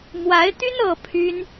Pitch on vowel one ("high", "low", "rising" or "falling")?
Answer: rising